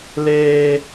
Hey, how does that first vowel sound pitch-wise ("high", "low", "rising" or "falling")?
high